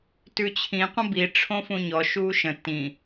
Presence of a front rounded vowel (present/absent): absent